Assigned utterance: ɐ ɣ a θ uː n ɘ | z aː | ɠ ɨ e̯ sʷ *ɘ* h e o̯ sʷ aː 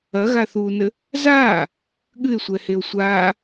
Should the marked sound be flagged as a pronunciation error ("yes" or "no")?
yes